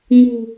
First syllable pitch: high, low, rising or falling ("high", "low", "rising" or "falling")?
low